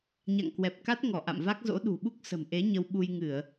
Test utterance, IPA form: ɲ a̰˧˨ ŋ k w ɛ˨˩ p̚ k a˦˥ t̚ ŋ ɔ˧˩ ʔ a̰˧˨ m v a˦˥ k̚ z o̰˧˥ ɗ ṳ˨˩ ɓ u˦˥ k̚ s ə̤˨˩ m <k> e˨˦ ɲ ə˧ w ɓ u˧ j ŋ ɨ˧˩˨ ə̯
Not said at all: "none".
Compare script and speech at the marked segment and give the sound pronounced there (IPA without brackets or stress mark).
ʔ